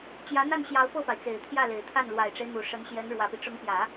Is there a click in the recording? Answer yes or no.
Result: no